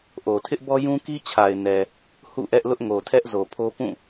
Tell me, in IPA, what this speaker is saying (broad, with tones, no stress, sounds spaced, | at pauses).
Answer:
ʔ o˨ tʰ ɪ˦ ʔ b ɔ˦ j ũ˦ k i˦ t͡ɕʰ a˨ ɪ̯ n ɛ˨ | h ṵ˦˨ ʔ ɛ˦ ʔ l ʊ˦ ʔ ŋ o˨ tʰ ɛ˦ ʔ z o˨ pʰ o˦ p ũ˦˨